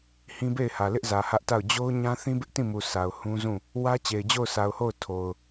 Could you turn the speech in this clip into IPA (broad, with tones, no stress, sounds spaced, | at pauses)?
h ĩ˦ b e˦˨ ɪ̯ h ä˨ l ɪ˦ ʔ z ä˨ h ä˦ ʔ t a˦˨ ʊ̯ d͡ʑ o˦ ʊ̯ ɲ ã˦ θ ĩ˦ b ɪ˦ ʔ t ĩ˦˨ m u˨ sʰ a˨ ʊ̯ h ũ˦ z ũ˦˨ | w ä˦ t͡ɕ e˨ ɪ̯ d͡ʑ o˦˨ ʊ̯ sʰ a˨ ʊ̯ h o˦˨ ʊ̯ tʰ o˨ ʊ̯